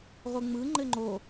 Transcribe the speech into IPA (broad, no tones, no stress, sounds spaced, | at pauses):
ʁʷ ɯ ŋ͡m ɯ ŋ͡ǃ ɘ ŋ͡ǃ o